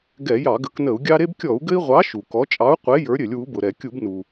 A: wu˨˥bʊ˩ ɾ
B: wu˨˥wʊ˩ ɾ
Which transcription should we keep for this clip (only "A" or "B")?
A